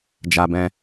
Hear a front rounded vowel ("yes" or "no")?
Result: no